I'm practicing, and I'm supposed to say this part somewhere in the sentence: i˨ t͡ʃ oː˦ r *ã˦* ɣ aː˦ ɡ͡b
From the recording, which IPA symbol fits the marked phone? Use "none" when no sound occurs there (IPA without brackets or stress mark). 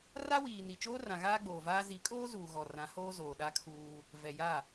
ã˨